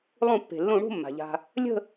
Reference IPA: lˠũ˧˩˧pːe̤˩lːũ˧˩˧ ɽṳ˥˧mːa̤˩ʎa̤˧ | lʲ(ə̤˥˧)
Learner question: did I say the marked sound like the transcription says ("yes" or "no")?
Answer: yes